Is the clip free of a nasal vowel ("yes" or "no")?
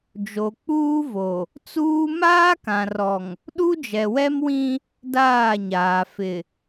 no